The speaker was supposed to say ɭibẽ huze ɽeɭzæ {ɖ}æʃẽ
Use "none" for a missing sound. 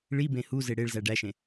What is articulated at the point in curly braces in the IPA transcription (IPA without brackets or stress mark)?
ɖ